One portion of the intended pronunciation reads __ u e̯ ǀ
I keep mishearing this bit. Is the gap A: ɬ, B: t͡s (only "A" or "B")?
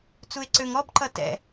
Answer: B